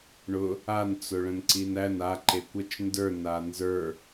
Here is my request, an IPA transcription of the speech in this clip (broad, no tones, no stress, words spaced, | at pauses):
ɳʊ | an t͡sʊɭə̃nǀinæn a ǃekʷət͡ʃ ndə˞ nanzə˞